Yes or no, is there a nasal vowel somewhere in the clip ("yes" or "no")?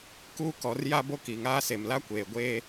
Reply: no